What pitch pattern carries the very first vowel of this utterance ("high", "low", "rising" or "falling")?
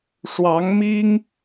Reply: rising